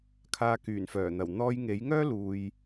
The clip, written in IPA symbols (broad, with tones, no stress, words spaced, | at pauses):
kʰaː˧kyː˨˩nfœː˨˩n̪ɐ˨˩w n̪ɔː˧j ŋe˨˥jŋœː˥luː˨j